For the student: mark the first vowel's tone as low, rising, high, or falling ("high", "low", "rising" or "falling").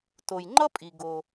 low